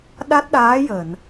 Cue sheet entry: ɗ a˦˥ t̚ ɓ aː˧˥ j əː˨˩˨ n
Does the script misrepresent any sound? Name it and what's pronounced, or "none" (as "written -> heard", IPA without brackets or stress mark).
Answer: ɓ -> ɗ